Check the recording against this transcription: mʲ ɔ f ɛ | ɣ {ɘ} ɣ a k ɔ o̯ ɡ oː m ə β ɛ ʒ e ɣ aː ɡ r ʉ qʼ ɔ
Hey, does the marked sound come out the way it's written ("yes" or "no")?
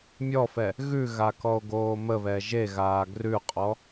no